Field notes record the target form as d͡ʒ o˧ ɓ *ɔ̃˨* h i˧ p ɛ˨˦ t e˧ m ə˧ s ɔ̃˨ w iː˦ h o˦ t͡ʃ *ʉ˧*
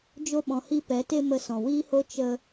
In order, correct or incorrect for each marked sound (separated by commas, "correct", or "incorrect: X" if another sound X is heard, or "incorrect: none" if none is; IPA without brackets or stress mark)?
correct, incorrect: ə˧